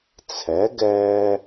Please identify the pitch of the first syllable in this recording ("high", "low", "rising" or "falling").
rising